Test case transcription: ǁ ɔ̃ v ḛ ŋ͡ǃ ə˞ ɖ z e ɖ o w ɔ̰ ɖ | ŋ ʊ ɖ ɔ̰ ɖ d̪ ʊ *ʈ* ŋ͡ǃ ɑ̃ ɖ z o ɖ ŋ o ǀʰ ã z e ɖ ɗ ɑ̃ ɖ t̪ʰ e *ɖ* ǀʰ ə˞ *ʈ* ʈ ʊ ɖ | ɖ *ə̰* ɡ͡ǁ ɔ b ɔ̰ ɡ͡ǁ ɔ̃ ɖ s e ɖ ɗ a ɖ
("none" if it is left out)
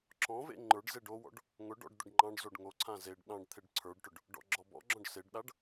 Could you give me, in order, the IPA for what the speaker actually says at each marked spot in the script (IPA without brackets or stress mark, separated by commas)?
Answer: ɖ, ɖ, ɖ, ɔ̰